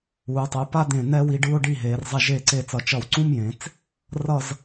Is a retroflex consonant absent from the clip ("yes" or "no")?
no